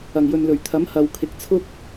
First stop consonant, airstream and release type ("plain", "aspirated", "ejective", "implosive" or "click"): aspirated